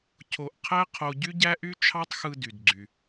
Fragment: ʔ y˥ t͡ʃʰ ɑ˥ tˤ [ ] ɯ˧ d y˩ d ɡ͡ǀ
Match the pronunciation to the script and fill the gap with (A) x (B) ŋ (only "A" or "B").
A